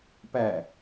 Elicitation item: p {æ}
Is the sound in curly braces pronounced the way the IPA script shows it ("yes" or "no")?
yes